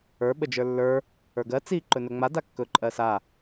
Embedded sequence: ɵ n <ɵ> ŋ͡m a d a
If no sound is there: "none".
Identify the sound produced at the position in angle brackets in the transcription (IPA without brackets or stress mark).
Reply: ɵ